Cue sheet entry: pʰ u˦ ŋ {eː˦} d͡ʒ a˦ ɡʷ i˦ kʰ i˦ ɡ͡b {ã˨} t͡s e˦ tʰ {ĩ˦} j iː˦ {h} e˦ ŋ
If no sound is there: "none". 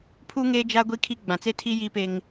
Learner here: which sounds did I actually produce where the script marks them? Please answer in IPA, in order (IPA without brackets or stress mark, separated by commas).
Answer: eː˦, ã˨, i˦, p